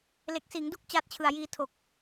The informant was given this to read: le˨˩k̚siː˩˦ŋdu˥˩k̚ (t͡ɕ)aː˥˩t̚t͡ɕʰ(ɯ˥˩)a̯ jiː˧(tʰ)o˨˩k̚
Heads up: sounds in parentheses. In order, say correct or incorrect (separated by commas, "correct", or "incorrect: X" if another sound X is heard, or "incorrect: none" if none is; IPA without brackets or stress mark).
correct, incorrect: ɯ˨˩, correct